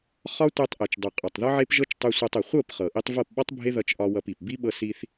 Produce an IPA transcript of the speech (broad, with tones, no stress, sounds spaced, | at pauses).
χ ɒ˦ tʷ e˧ tˤ ʔ e˨ t͡ʃ dˤ u˨ qʼ ɒ˨ tˤ ð ɒ˦ ʕ e˦ p ʒ ɤ˦ t͡ʃ tˤ u˧ sʷ e˧ tˤ ɤ˨ χʷ ɤ˦˨ p χ ɤ˨ ʔ i˦ tˤ v ɤ˦˨ p ɓ ɒ˦ tˤ bʱ e˦ ð ʌ˧ t͡ʃ ʔ ɒ˧ w ʌ˧ p i˨ p b i˦ ɓ ɤ˧ s i˧ θ